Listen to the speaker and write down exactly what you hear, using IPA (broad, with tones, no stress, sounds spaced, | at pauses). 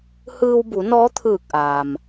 h ɯː˧ w b u˩˧ n ɔː˧˥ t̪ʰ ɯː˧˩ k̚ ʔ aː˩ m